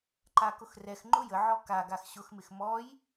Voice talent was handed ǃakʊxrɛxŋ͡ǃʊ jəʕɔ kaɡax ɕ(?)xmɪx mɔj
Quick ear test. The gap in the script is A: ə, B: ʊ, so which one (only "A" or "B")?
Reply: B